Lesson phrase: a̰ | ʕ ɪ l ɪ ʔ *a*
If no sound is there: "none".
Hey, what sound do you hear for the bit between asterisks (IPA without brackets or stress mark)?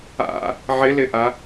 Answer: a